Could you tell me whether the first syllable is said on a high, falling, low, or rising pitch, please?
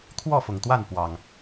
falling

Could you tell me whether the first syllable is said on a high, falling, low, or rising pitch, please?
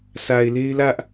low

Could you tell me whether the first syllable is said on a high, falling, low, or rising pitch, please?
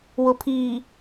low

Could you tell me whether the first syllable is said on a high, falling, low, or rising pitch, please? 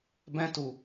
high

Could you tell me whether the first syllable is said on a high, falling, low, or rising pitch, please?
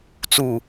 falling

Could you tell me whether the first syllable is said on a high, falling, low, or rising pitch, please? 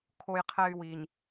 high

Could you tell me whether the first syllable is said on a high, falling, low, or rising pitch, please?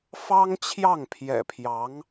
high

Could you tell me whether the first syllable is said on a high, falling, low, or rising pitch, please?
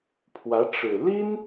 rising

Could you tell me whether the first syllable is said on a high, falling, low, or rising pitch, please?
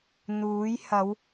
rising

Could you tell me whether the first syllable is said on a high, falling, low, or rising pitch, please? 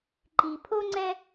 low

